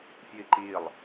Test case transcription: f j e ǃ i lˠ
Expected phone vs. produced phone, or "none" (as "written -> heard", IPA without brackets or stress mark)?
e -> i